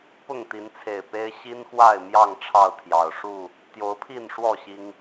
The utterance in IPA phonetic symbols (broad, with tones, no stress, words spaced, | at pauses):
pʊ˥˨ŋt̪i˨˦nt͡sʰe˨˩ɪ̯pe˦ɪ̯ ɕi˦nxwa˥˨ɪ̯ mjɑ˥˨ŋ ʈ͡ʂʰɑ˥˨ʊ̯t̪ʰjɑ˨˩ʊ̯ ʂu˥˨ | t̪jo˨˦ʊ̯pʰi˥˨nʂwɔ˥˨ ɕi˦ŋ